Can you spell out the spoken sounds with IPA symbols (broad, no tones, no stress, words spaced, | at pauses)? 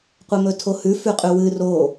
qʷemɵtʰohʉ fʉqʼʉwɨ ro